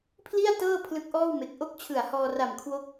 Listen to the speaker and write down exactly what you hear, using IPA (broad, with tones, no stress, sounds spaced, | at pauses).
pʰ l i˥˩ a̯ t ɤː˥˩ pʰ l ɯ˦˥ k̚ ʔ ɔː˥˩ w m e˨˩ k̚ ʔ o˥˩ k̚ t͡ɕʰ ɯ˨˩ a̯ h ɔː˧ r a˨˩ m kʰ w o˦˥ k̚